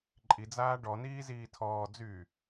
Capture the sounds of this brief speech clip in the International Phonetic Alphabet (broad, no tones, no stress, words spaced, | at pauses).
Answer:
ǃʼid͡zaː ɖɔniː ziːtʰɔːd͡zyː